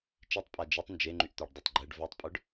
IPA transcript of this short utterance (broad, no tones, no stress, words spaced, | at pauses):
t͡ʃitˤpʼa d͡ʒetˤ nd͡ʒeŋ͡ǃyʔt̪œɖdˤotˤ ɡ͡ǃɛɖ vœtˤpʼœɖ